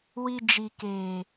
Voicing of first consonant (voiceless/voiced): voiced